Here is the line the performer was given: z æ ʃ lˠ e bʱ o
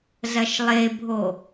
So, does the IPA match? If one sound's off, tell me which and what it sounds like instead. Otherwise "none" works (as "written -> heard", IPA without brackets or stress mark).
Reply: æ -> ɐ